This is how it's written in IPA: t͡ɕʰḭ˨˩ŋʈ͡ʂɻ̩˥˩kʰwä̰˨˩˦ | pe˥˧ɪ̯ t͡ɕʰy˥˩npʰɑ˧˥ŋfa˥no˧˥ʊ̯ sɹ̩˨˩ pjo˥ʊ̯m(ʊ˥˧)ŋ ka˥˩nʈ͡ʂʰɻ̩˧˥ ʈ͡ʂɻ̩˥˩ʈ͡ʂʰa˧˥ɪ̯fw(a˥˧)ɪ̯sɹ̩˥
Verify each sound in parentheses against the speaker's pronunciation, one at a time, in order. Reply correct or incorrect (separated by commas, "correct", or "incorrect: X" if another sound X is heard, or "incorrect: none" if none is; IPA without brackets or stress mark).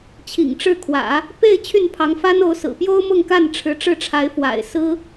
correct, incorrect: a̰˨˩